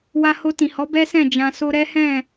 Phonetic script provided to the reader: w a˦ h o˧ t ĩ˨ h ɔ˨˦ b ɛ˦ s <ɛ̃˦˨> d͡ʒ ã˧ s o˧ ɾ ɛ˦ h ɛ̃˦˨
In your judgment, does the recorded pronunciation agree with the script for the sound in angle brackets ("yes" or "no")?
yes